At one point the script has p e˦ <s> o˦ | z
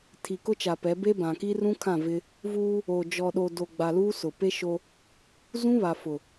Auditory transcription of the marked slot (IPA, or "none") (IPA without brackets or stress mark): ʃ